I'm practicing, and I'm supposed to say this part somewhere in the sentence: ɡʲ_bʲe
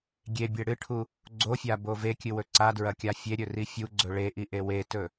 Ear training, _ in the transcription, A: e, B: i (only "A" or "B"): A